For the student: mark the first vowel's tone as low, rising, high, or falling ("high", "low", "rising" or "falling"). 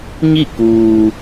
falling